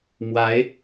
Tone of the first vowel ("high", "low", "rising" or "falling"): rising